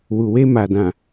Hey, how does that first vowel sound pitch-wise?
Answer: low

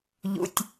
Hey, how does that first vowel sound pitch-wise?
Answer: low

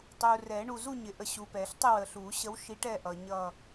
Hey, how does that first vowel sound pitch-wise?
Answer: low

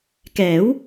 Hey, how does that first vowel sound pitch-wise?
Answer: rising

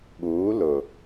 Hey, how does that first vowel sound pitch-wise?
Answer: rising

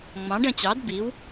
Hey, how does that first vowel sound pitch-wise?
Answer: rising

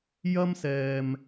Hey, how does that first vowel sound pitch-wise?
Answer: high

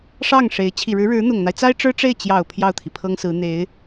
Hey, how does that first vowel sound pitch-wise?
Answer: falling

